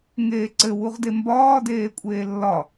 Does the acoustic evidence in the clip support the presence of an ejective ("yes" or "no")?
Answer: yes